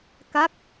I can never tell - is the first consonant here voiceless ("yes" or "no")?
yes